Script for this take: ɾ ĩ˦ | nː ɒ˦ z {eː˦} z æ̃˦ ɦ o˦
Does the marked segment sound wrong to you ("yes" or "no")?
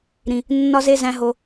yes